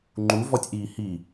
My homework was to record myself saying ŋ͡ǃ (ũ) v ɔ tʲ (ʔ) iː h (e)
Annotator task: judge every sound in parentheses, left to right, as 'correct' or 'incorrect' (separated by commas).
incorrect, correct, incorrect